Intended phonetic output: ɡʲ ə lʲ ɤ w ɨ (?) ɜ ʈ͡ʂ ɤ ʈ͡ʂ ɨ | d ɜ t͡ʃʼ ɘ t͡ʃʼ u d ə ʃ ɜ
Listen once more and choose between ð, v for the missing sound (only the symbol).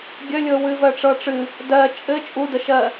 v